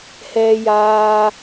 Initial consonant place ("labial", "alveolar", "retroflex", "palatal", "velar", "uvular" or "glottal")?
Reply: glottal